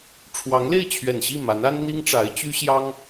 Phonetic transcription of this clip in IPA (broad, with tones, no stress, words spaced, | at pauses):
ʈ͡ʂʰwɑ˧˥ŋle˥˩ɪ̯t͡ɕʰɥɛ˨˩nɕi˥˩ ma˧˥na˥n n̪i˥ŋʈ͡ʂa˧˥ɪ̯t͡ɕy˥ ɕjɑ˥ŋ